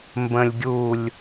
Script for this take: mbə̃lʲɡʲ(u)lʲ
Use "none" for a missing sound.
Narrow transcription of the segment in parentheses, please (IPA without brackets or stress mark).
u